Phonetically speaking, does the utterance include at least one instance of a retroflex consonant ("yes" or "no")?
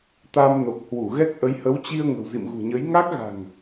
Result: no